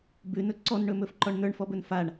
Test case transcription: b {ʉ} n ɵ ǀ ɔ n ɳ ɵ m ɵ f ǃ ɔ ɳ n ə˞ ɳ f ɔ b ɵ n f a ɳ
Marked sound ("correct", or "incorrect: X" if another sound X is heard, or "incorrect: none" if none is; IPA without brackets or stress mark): correct